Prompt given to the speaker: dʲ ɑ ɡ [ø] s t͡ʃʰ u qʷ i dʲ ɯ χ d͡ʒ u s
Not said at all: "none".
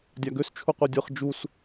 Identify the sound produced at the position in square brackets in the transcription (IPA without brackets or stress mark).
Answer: ø